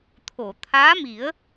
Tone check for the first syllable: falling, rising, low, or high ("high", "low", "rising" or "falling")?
low